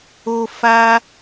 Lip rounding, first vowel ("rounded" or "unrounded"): rounded